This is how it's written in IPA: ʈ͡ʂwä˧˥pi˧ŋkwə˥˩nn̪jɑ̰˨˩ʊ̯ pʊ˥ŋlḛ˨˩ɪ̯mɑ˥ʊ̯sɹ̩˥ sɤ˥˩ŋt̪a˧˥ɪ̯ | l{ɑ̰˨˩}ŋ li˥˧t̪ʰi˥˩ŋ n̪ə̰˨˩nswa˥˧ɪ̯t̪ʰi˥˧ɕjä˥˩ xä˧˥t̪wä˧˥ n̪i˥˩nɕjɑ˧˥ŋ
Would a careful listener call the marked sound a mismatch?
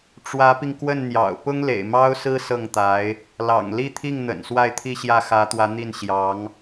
no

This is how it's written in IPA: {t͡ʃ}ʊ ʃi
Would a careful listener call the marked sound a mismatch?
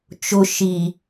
no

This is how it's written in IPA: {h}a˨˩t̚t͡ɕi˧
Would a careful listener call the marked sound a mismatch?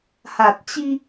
no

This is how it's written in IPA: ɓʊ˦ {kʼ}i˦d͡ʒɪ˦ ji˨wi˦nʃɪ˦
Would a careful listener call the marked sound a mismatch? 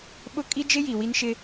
no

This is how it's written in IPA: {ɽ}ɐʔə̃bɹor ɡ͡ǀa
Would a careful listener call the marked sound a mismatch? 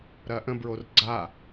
yes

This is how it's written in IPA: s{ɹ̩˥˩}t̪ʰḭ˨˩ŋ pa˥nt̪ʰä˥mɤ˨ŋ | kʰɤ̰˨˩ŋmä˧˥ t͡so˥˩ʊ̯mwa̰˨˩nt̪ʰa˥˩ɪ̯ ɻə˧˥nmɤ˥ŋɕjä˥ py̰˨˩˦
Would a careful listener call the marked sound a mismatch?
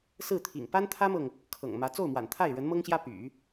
no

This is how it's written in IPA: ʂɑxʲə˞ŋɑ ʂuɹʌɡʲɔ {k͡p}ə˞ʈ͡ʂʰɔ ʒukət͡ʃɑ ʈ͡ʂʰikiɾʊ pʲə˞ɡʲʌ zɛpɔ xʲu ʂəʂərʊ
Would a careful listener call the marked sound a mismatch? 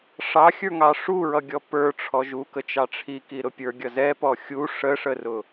yes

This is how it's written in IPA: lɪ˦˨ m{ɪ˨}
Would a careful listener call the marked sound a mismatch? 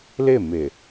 no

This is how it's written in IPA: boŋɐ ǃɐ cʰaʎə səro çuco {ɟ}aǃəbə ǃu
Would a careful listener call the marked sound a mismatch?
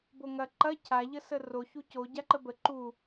no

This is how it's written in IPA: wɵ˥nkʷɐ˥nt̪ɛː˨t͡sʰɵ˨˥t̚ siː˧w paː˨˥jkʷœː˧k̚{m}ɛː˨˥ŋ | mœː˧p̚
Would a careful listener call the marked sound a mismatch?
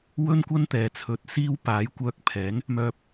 yes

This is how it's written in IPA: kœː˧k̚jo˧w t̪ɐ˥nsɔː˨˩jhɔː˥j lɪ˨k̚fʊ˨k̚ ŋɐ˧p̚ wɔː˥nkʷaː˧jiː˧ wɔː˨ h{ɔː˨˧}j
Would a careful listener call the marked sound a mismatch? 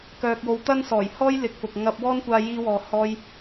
yes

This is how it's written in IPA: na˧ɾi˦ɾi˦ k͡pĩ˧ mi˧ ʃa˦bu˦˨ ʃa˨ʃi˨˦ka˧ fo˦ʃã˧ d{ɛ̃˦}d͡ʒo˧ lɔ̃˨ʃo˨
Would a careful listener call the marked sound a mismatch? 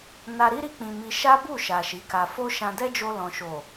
yes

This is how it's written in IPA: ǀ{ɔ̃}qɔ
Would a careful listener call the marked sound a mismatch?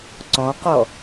no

